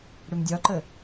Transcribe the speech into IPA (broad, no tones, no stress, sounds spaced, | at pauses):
ɽ ʏ m dʲ ɒ ǃ ə